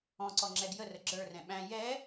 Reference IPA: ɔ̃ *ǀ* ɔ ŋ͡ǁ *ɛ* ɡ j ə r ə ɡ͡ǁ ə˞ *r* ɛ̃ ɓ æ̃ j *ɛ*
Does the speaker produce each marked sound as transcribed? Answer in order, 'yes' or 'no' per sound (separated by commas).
yes, yes, yes, yes